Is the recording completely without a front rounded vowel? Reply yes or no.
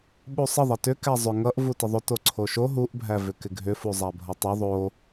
no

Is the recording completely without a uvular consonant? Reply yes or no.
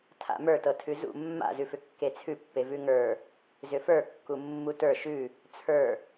yes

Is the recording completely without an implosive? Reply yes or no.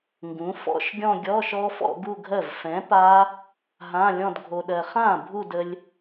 no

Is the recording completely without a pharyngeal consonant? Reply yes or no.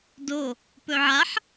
no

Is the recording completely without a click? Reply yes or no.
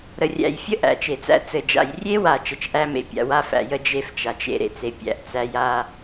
yes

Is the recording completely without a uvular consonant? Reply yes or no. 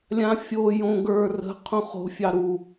no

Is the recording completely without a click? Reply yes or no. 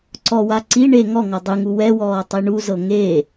no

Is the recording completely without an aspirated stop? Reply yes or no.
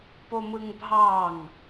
yes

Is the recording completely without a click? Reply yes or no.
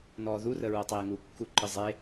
no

